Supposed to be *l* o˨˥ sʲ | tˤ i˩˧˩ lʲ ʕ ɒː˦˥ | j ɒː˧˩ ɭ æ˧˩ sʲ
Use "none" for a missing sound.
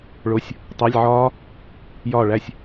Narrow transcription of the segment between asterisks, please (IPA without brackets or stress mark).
ɭ